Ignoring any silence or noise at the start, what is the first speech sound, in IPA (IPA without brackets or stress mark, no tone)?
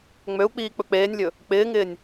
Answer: ŋ͡m